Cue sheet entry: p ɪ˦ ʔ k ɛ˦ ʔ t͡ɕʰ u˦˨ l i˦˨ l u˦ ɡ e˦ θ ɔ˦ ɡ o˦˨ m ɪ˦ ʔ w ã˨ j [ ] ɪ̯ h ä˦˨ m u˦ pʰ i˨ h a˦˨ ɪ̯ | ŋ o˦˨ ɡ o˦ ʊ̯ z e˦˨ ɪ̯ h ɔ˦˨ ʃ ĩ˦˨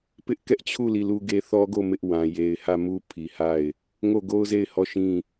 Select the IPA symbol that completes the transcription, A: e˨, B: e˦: A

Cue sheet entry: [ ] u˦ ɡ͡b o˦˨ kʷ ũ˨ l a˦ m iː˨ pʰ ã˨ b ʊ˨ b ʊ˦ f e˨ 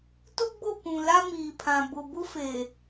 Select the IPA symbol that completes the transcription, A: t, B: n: A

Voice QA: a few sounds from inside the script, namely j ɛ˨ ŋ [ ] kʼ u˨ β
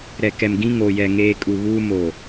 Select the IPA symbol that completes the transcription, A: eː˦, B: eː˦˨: A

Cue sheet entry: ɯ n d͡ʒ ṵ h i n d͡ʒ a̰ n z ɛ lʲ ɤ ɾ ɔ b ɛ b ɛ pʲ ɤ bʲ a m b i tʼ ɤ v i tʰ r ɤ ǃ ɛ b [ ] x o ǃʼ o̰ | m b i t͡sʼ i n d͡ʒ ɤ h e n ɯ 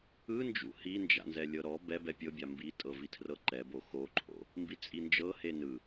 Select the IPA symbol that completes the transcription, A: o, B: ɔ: A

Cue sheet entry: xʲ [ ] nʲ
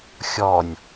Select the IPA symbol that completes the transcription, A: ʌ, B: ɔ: B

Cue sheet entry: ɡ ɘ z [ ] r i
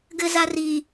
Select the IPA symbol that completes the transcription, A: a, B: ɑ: A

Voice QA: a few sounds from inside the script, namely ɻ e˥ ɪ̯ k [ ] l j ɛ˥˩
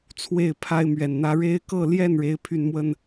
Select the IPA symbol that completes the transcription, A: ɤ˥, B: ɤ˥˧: B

